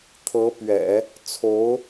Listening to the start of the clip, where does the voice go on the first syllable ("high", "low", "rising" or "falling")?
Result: rising